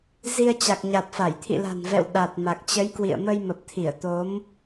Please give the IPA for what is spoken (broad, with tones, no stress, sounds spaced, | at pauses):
z i˧ ə̯ t͡ɕ a˨˩ k̚ ɲ a˨˩ t̚ f a˧˩ j t̪ʰ ḭ˧˨ l a̤˨˩ n v ɛ̰˧˨ w ɗ a˨˩ t̚ m a˨˩ k̚ t͡ɕ ə˨˦ j k w ḭ˧˨ ə̯ m ə˧ j m ə˨˩ p̚ t̪ʰ i˧˩ ə̯ t̪ o˨˦ m